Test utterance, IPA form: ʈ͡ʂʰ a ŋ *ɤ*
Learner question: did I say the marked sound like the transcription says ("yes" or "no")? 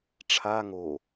no